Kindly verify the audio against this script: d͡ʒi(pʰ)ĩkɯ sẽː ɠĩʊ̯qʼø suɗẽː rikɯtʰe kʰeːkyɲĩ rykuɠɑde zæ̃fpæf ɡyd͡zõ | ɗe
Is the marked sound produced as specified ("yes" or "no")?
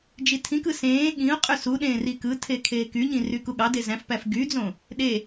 no